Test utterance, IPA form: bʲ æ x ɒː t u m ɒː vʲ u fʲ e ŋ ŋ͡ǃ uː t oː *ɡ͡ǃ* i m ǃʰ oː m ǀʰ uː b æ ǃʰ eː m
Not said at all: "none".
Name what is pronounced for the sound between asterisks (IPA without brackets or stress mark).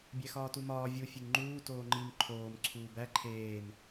ŋ͡ǃ